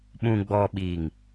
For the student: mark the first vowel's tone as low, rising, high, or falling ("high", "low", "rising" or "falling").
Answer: low